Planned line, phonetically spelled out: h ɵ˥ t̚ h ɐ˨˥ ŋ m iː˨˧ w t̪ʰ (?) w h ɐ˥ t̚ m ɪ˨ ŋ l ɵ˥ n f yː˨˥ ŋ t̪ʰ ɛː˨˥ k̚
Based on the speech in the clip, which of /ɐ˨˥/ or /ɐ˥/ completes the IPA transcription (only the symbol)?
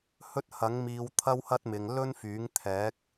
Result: ɐ˥